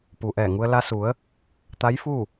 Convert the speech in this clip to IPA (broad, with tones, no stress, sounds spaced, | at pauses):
p u˩ ʔ ɛː˧˩ ŋ u˧ ə̯ l a˧ s u˩˧ ə̯ | t̪ a˧˥ j f u˥˨